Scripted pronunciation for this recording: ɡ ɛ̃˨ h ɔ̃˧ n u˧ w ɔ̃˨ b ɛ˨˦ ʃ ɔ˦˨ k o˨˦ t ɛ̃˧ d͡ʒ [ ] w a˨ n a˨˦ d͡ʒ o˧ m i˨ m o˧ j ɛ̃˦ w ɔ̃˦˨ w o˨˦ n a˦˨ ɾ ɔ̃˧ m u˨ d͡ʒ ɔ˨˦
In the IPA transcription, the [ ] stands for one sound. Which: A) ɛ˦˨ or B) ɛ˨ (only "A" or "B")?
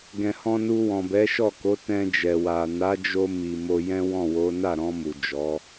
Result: B